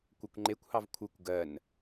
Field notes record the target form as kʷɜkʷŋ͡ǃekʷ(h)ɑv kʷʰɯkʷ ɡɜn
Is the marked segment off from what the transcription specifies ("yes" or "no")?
no